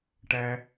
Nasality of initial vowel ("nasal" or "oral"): oral